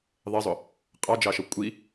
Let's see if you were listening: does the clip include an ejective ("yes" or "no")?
yes